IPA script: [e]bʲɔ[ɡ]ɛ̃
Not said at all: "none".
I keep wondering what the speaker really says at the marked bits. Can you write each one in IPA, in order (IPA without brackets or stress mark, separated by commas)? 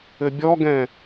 ɘ, ɡ